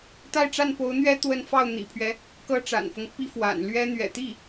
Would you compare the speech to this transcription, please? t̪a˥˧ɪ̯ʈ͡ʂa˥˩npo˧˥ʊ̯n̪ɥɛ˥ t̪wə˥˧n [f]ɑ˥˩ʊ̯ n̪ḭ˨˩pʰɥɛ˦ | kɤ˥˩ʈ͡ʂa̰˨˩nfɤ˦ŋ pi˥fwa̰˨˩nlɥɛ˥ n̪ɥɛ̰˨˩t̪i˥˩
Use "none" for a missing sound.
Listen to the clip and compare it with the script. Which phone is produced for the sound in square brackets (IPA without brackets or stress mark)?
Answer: f